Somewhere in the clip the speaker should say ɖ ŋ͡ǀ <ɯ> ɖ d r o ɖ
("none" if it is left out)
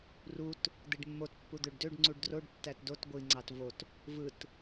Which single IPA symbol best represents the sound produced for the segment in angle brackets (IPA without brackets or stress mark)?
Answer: u